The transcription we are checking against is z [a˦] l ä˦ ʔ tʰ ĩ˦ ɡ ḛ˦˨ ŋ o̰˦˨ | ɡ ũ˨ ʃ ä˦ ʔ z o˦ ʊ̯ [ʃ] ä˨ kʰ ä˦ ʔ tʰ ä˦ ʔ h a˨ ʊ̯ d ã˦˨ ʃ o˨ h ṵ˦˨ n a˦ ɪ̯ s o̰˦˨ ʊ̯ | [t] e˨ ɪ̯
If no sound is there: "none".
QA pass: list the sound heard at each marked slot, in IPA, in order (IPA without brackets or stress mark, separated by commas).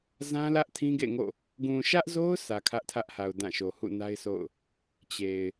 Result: ã˦, s, t͡ɕ